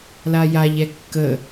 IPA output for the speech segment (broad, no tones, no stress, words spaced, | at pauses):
lajaʎɛ kːə